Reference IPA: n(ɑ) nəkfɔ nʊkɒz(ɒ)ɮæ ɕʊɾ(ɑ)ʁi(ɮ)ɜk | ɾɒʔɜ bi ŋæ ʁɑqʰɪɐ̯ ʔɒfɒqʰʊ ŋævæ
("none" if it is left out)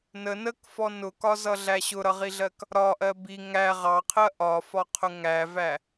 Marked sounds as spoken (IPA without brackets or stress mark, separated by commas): ə, ʌ, ʌ, ɮ